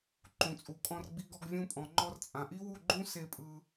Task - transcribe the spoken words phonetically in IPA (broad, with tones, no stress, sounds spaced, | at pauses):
ǃ ũ˨ t͡sʼ u˨ kʼ ɔ̃˧ r ɡ͡b i˧ ɡ ɔ˧ ɡ vʲ ũ˧ pʼ ɔ̃˨ ŋ͡ǃ ɔ˧ r t͡sʼ ã˨ ʔ i˦ w u˦˨ ɡ͡ǃ ũ˦ s e˧ pʼ ɯ˧